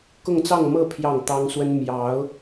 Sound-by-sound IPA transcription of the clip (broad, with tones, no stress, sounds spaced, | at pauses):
k ʊ˥˧ ŋ t͡s ɑ˥˧ ŋ m ɤ˥˧ pʰ j ɑ˥˩ ŋ t̪ ɑ˥ ŋ s w ə˥ n m j ɑ˧˥ ʊ̯